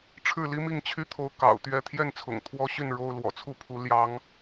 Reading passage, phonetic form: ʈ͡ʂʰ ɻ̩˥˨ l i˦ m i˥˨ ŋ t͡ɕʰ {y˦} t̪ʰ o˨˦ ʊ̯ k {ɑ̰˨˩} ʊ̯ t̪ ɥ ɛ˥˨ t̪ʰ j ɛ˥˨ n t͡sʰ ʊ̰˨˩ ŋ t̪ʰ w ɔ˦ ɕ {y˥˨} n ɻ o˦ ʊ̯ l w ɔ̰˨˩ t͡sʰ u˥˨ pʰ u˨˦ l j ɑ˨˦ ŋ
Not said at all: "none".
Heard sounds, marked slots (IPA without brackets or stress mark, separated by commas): y˦, ɑ̰˨˩, y˥˨